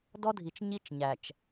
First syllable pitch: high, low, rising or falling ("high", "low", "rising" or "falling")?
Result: high